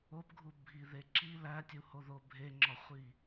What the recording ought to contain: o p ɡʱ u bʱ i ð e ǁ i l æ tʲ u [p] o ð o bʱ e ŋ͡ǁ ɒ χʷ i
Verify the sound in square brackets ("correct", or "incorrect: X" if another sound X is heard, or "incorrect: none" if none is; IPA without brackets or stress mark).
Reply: incorrect: h